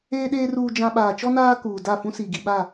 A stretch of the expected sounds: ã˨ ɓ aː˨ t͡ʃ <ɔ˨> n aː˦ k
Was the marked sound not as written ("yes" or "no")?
yes